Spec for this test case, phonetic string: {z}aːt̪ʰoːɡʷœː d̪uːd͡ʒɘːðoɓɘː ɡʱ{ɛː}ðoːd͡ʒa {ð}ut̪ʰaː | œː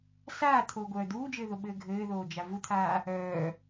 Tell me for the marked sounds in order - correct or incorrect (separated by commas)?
incorrect, incorrect, incorrect